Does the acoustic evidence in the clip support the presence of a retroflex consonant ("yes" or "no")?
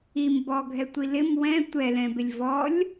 no